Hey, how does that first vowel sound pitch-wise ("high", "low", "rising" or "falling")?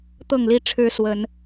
falling